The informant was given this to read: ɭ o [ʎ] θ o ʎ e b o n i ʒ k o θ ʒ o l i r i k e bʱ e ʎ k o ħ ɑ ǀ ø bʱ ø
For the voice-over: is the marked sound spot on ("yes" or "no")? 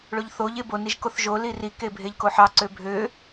yes